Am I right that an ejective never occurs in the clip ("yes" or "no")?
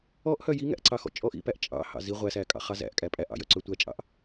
no